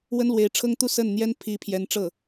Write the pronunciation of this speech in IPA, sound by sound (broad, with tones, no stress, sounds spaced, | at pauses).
w ə˥ n l w e˧˥ ɪ̯ ʈ͡ʂʰ ɤ˥ ŋ t̪ u˥˧ s ə˥˩ n n̪ j ɛ˥ n pʰ i˧˥ pʰ j ɛ˧˥ n ʈ͡ʂ ɤ˥˩